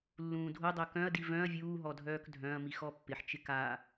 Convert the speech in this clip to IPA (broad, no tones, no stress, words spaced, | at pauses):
lːũːdʱodˤœ kœ̃ɐ̯di vœ̃ɐ̯ vʲuːɦɔ dʱœːkdʱœ̃ɐ̯mi xɔpːɪħt͡ʃɪ ka